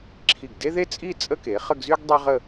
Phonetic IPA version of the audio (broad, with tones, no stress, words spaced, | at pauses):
ǁʰi˧˩ɡde˥ðe˥t͡sʼi˥˧ t͡sʼə˥ke˩˧ χə˥˧ɡzy˥ɡ dˤe˥ʁə˥˧